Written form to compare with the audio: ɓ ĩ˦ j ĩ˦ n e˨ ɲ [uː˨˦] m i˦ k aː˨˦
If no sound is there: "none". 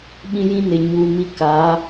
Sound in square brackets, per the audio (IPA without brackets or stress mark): uː˨